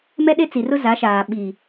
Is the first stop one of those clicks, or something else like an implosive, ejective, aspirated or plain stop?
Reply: implosive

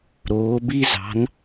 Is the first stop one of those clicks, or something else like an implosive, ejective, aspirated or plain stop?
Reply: plain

